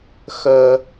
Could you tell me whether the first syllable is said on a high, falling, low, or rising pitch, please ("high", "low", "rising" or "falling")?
low